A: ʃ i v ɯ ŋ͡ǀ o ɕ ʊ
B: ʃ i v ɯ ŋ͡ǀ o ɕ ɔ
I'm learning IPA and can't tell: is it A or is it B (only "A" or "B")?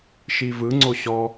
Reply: B